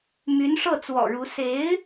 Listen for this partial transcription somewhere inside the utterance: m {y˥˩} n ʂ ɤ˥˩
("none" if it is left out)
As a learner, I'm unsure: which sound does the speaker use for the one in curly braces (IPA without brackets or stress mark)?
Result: y˧˥